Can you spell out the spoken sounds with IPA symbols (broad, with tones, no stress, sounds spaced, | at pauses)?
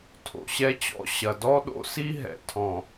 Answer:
tʰ o̰˨ ɕ ɛ˦ t͡ɕ ɔ̰˦ ɕ ɐ˨ d ɔ˦ ɗ o̰˦ s i˦ ɦ ɛ̰˨ tʰ ɔ̃˨